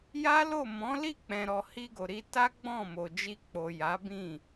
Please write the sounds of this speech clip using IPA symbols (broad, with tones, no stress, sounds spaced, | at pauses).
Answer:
j a˦ l o˦˨ m ɔ̃˨˦ l i˦˨ k͡p ɛ̃˨ ɾ ɔ˨ h i˧ ɡ o˨ ɾ i˧ t a˦ ɡ͡b ɔ̃˦˨ m o˨ d͡ʒ i˧ k͡p o˨ j a˨˦ b ĩ˦˨